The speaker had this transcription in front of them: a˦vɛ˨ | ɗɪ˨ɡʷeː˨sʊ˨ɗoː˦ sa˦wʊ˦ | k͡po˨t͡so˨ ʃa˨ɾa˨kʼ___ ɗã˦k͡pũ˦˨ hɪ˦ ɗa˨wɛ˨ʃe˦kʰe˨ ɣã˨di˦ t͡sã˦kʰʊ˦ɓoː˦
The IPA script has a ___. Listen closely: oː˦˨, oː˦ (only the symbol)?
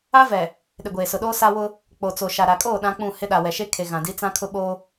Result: oː˦˨